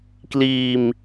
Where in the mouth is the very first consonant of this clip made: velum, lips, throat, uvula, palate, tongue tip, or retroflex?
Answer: velum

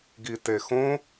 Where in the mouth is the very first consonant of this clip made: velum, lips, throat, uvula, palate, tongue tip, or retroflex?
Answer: velum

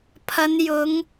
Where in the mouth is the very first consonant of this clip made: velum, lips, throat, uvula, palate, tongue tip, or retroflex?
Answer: lips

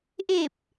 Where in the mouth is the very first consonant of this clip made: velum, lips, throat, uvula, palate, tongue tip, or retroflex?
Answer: throat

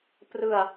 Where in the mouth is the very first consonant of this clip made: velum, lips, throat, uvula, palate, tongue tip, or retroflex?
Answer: lips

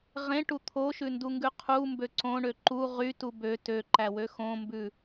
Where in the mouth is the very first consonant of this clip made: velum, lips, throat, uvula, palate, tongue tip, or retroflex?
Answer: uvula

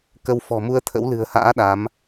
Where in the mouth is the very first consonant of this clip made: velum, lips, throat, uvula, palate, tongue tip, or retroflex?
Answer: velum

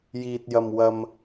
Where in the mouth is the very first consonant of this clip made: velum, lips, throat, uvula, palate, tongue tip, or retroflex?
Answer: palate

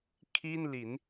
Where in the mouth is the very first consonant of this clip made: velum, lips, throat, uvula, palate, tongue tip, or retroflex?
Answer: velum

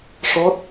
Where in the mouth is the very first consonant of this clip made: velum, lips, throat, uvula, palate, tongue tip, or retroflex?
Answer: retroflex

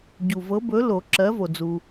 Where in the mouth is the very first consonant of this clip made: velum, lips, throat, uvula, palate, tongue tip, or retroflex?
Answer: palate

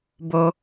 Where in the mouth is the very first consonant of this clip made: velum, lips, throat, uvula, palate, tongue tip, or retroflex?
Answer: lips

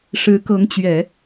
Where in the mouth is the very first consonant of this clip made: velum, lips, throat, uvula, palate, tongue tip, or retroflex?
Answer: retroflex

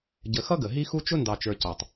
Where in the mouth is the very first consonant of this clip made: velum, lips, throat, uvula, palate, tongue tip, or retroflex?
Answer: palate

